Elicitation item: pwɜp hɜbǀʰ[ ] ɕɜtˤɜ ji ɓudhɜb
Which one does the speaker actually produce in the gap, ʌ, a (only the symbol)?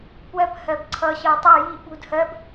ʌ